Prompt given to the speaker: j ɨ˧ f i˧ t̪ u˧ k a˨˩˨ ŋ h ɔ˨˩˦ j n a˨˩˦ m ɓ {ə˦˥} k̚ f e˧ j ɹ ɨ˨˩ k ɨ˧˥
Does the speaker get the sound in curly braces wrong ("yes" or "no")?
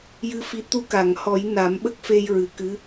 no